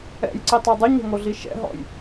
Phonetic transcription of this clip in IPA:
ɛ̰ j ǀ i tˤ ɤ dˤ ɯ ɲ ɛ̤ ŋ o ɮ i ʃ ɛ̰ ɦ ɔ̰ j

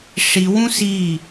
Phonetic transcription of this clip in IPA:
ʂ i w ũ s i

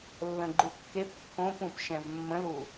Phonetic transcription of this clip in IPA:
lː ə̃ ɡ͡ǃ u kː e p kː õ p ũ p ʃ ɛ̃ v mː ə̃ l u

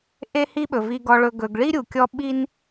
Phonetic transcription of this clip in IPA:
ʔ e˦ h i˦ ɓ ɵ˨ v i˨ ɡ ɔ˨ ɭ ɵ˨ ɡ ɵ˨ ɡ ɭ i˦ ɾʲ u˨ kʲ ɔ˦ ɓ i˦ n

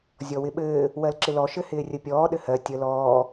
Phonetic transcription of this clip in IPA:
zʲ ɔ w ɪ ɓ ɘː | w ɜ l ǁ ɪ l ɔ ʃ ɘ h ɪː rʲ ə pʲ ɔː ɗ ɘ h ɜ tʲ ə l ɔː

